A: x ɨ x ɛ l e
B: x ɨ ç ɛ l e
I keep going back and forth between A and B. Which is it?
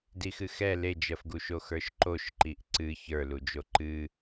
A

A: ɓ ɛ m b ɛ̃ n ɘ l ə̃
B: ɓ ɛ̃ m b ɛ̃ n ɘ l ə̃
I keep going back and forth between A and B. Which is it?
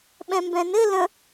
B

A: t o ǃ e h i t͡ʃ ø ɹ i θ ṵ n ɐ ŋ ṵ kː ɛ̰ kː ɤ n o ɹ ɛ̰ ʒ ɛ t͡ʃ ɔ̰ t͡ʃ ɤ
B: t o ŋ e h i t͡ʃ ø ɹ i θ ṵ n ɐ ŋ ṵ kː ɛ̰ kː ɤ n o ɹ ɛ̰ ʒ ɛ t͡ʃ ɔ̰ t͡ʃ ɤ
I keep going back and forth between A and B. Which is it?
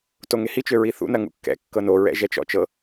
B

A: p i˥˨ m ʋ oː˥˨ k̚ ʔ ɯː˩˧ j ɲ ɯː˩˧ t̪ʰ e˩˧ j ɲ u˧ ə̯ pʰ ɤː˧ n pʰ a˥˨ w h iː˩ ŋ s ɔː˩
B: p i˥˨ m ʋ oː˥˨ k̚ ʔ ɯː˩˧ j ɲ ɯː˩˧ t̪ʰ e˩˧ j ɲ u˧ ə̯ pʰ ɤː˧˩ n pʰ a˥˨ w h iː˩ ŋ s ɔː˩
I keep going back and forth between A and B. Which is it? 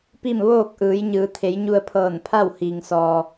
B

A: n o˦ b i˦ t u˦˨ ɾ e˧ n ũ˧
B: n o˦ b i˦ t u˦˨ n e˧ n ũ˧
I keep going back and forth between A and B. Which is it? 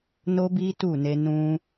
B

